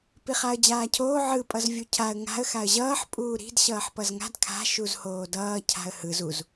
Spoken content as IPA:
piχaə̯d͡ʑaːcʰoː ʕɯ pʼʌzvʲucʰaə̯ ŋa̤ə̯ xaə̯ʑʌːħ pʼuːɾi̤d ɕʌːħpʌzŋa̤d kʰa̤ ʃuzhoːdʌː cʰa̤ə̯hɯz uz

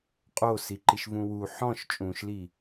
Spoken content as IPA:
qʼosiǃiʃ vũwu ħɔ̃ʃ t͡ʃʼũʃli

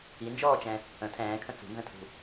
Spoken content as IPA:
ind͡ʒɔːt͡ʃɛ̃ | ə̃ tʰɛ̃ːkʰə̃ t͡sṳnzə̃tʰṳ

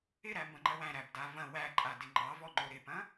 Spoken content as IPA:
ɪɾæmbɐ̃ŋ͡ǃɐw æ̃ɾæbda vɐ̃ wæǃʼadɪ ŋ͡ǃɑvɔŋ͡ǃo ɾɪpɐ̃

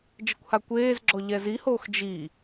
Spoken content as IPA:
d͡ʒɘkʷhakʷeːzɡ͡ǁɔ ʎɛzihoːx d͡ʒi

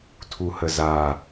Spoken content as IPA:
tʰuhəza

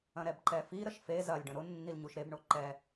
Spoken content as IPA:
ɐ̃ɾɛbǃɛfi ɾəʃfe zɐlʲɖə̃ ɾʊnːilɲuʃ ɾebɳo ǃɛ

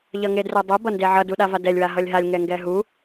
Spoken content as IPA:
ʎʌŋedrɛdˤu bʌndeʕʌ duɗavadɛlʲ waɦʌlʲɦalʲ ŋɛŋɡɛɦu

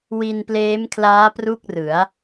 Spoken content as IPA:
wi˧npleː˦˥mkʰlaː˦˥ pru˥˩k̚rɯ˩˦a̯

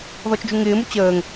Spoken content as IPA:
ðɔt͡ʃd͡ʒuŋɪːmu t͡ɕəːŋ

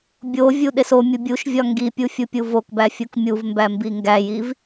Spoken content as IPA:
bʲovʲu ɗesomʲu bʲuʃvʲɒ ŋɡipʲu fʲupʲuvokbæ fʲukmʲuvmbæ mbiŋɡæjiv

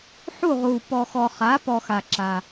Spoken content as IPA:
ħu˥˨ʁuː˨ pɔ˨xɔ˨χaː˩˥pɔ˨ xa˨ǁa˨

